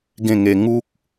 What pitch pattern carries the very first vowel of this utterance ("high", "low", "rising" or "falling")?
falling